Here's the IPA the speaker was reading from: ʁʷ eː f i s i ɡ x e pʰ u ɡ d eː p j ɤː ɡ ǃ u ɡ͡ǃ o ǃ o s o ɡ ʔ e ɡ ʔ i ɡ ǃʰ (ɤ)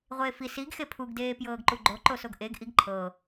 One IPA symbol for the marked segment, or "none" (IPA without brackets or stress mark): ɤ